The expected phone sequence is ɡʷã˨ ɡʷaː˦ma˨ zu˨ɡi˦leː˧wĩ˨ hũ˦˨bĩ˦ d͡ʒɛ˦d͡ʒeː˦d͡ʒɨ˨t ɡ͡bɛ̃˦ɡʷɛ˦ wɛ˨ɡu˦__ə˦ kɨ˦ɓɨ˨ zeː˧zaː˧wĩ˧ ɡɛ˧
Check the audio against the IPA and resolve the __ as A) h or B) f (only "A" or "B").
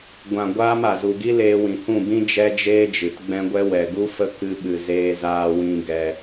B